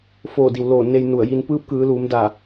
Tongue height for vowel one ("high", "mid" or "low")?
mid